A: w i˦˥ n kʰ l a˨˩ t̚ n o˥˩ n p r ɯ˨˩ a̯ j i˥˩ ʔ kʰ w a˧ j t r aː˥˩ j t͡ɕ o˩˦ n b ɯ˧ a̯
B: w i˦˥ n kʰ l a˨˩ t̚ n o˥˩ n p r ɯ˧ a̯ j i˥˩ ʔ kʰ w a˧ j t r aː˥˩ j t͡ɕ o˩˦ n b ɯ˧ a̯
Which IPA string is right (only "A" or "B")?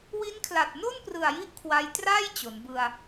A